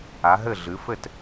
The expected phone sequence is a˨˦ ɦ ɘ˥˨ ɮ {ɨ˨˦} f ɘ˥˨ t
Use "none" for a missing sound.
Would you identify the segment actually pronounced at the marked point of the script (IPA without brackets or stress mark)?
ɨ˨˦